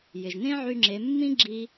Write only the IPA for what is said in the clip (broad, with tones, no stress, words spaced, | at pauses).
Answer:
jɪ˩ʒnẽ˥ʕy˧ŋ͡ǁe˩˧ mːĩ˥ ɡ͡ǁi˧